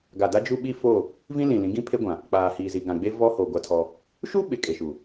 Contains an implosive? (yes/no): yes